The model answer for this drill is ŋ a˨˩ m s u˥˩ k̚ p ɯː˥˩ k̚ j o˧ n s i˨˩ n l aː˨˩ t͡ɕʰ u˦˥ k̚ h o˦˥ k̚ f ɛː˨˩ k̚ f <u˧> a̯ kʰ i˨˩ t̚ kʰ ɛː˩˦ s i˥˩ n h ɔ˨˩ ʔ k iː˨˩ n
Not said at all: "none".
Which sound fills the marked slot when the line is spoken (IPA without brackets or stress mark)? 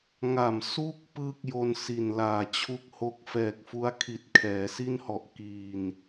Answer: u˦˥